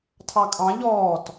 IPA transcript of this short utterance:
tʰ ɑ kʼ ɑ̃ ʎ ɔː t

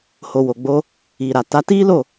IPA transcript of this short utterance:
h o˨ w o˨ ɡ͡b o˧ | i˨ ɾ a˨ t a˨˦ t i˦ l o˦˨

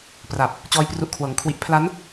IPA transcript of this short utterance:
p r a˨˩ p̚ | t͡ɕ ɔː˦˥ j p r u˦˥ ʔ kʰ w ɤː˨˩ ŋ kʰ w i˦˥ ʔ pʰ l a˦˥ n

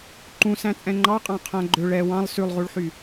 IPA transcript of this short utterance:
ǃ ũ s æ̃ t͡sʼ ɛ̃ ŋ͡ǃ ɑ qʼ ɑ̃ qʰ æ̃ ɡ͡ǃ ø ɭ ɛ w ɑ̃ lˠ s ʉ lˠ ʁ u ɭ ħ y

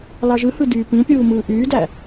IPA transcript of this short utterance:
l ɑ ʒ ɯ h ɯ d yː p ĩ pʲ uː m ɯː ʔ yː d æ

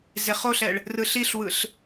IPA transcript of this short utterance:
z e χ o ɬ ɛ ɭ | r ɯ ɬ i ɬ w ɯ ɬ

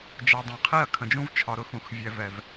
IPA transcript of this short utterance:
d͡ʒ ɛ˨ dˤ ɛ̃˨ qʰ i˦˨ ɐ̯ kʰ ə̃˨ d͡ʒ ũ˦ v t͡ʃʰ ɒ˨ ɾ ʊ˨˦ x ũ˨ x vʲ ɛ˨ v ɛ˨ v

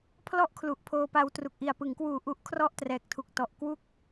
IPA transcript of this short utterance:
pʰ l ɔ˥˩ ʔ kʰ l u˨˩ ʔ pʰ oː˧ p a˧ w t r u˨˩ k̚ ʔ i˨˩ a̯ p ɯ˩˦ ŋ k w uː˨˩ ʔ u˦˥ ʔ kʰ r ɔ˥˩ ʔ t r ɛː˨˩ k̚ tʰ u˨˩ k̚ t ɔ˨˩ ʔ k w u˥˩ k̚

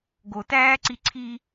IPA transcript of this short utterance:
ɡ o t æː ǀ i ǀʰ i

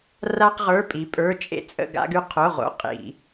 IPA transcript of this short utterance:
r a˥ q ʁ ə˞˧˥˧ pʼ i˨˥ pʼ ə˞˧˥˧ t͡ʃʼ ḛ˥ t͡sʼ ə̰˥˧ ɡ a̰˥ ɡ ʉ˥˧ qʰ o˧˥˧ ʁ o̰˧˥˧ qʼ ḭ˧˩˧

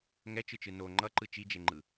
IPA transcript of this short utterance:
ŋ ɛ t͡ʃ ɯ t͡ʃ ɯ n o ŋ͡ǃ ʌ ǃ ɯ t͡ʃ i d͡ʒ e ŋ͡ǃ ɯ

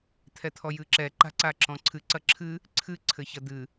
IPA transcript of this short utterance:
t̪ʰ ɛ t̪ʰ ɔ j ɨ ǁ ɛ ǃ a̤ ǀ a ǁ ɔ̃ ǀʰ ɨ ǀ ɐ ǁʰ ɨ | ǀʰ ɨ ǀʰ ɘ ç ɐ d̪ ɨ

